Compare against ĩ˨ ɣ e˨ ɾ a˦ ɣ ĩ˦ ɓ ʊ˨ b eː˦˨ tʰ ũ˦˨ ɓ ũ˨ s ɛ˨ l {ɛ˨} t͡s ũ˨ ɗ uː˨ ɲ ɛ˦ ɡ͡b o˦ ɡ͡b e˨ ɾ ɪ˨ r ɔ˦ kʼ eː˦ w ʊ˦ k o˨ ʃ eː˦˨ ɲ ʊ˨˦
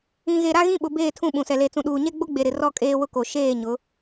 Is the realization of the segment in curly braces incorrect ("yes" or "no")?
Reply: yes